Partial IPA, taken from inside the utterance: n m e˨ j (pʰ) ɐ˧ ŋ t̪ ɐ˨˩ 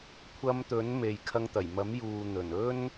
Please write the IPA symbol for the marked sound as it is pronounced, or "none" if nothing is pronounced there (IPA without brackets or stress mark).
kʰ